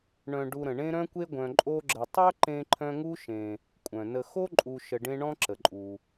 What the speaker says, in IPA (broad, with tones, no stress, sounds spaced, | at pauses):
ɳ œ̃˨ ɖ u˨ ɾ ə̃˩ ɳ ẽ˦ ɾ œ̃˦ kʷ e˦ ɡʷ œ̃˨ ǃʼ o˦ ɡ͡ǁ ə˨ tˤ œ˦ ǃ ẽ˦ ǃʰ œ̃˦ ŋ u˥ ʃ ẽ˨ | kʷʼ œ̃˩ n ə˨ x o˥ ǃʼ u˨ ʃ ə˨ ɖ ẽ˦ ɳ ɔ̃˥ ǁ ə˩ ǃʼ u˩